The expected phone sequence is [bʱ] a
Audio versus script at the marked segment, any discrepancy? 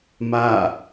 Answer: yes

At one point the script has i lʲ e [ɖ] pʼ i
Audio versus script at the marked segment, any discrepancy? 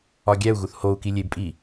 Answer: yes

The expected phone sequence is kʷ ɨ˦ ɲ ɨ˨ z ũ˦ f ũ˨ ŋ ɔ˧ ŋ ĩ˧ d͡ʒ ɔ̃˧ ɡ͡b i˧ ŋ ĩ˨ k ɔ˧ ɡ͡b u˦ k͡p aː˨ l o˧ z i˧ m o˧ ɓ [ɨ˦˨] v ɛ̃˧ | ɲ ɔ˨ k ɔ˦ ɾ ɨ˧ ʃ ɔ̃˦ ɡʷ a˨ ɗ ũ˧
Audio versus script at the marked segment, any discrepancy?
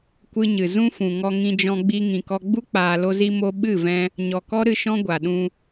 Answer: no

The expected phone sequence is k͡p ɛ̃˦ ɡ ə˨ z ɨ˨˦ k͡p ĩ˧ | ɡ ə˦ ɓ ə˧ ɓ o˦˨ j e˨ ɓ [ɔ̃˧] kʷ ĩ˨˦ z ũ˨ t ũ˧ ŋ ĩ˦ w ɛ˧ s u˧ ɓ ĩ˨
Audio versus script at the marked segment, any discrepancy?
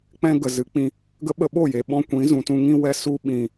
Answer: no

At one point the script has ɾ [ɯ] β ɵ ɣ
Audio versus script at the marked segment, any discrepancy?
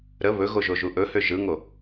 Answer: yes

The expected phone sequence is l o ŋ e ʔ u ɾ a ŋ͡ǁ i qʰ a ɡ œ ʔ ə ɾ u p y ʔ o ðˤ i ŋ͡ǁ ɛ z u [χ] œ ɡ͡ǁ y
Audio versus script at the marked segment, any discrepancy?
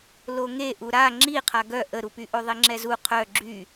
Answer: yes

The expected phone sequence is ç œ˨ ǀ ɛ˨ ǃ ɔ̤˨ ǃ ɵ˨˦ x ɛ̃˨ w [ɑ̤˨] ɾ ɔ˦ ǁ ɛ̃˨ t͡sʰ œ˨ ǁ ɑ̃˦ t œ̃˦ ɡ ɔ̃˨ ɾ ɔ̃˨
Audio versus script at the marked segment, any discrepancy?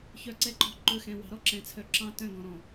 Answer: no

